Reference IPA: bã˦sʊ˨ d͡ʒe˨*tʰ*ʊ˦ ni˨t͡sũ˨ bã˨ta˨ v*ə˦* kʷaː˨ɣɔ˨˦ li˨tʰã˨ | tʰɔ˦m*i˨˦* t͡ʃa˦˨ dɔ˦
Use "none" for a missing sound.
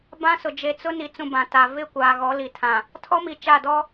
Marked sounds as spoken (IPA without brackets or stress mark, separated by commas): t͡s, ɪ˦, i˨